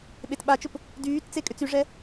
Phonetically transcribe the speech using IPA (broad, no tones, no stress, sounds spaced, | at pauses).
ɓ e t ɓ a t͡ʃ ʊ p | d yː t t͡s e kʼ ʏ t͡s y ʐ ɛ